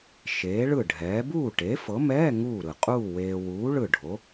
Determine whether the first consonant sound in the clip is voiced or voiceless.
voiceless